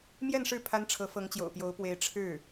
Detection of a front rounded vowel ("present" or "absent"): absent